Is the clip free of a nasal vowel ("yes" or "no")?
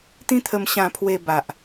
no